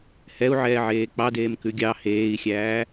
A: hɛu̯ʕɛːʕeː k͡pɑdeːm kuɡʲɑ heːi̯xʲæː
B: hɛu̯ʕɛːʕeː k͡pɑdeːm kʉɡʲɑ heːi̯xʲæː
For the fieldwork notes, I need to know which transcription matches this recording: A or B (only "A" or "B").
B